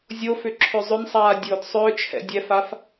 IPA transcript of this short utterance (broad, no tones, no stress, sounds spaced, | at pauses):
zʲ o f ʏ ǁʰ ʏ zˤ ʏ n sˤ aː dʲ ʊː d sˤ ʏː t͡ʃʰ ɛ̰ dʲ ɛ f a f